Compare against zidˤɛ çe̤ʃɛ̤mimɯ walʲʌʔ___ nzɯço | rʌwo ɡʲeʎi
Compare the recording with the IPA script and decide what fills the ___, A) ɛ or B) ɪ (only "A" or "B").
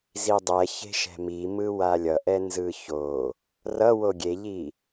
A